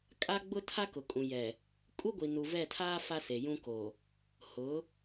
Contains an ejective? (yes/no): yes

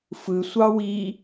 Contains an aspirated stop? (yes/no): no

